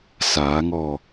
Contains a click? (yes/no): no